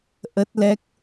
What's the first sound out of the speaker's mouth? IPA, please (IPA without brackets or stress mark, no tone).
ʔ